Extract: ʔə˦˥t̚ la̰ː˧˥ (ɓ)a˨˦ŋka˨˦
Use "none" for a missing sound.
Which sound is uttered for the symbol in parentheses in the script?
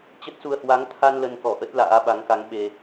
ɓ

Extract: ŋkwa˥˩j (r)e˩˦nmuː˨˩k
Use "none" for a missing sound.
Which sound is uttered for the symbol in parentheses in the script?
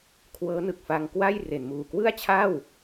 r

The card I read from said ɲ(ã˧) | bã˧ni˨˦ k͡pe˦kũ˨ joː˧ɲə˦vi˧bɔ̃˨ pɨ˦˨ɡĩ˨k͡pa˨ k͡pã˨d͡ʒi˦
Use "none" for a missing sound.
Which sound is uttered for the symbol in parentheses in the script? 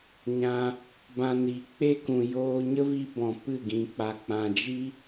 ã˧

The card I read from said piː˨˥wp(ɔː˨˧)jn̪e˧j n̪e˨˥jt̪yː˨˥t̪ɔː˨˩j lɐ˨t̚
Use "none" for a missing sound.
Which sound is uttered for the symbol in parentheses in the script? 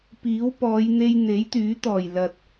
ɔː˨˧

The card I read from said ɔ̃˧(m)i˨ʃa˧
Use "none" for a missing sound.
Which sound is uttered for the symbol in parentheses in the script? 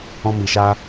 m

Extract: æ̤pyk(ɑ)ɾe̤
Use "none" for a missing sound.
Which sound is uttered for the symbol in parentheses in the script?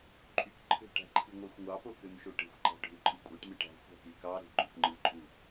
ɑ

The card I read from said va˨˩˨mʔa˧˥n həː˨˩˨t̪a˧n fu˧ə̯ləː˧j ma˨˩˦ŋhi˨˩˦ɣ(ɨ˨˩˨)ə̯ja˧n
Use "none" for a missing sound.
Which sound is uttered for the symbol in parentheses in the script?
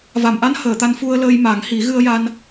ɨ˧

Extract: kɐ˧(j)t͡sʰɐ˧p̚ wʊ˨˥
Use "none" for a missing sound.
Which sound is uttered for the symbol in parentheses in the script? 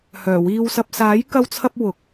w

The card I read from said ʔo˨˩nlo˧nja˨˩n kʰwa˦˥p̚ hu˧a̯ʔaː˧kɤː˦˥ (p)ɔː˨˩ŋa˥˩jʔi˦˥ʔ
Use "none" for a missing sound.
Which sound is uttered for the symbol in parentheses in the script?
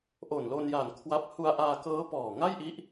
p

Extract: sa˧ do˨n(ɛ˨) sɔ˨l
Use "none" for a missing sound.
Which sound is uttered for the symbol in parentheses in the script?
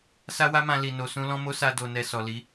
ɛ˨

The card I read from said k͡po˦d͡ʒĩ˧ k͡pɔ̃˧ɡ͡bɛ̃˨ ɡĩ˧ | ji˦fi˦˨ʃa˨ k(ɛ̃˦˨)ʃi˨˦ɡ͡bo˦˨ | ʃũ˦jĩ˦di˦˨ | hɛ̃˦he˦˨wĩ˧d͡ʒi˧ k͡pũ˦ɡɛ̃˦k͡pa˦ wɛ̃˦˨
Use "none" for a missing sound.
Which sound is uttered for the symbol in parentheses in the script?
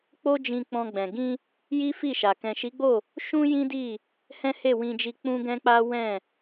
ɛ̃˨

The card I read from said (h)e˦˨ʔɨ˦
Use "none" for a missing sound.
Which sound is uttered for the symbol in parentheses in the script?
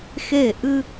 x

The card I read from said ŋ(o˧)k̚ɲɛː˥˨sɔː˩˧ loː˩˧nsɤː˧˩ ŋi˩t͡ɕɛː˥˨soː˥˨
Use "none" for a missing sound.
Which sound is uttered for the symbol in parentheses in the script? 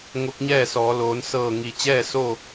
o˧˥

